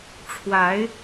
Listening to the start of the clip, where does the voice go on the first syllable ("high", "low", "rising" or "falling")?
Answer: rising